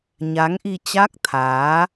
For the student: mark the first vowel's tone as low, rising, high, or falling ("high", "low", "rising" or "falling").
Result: rising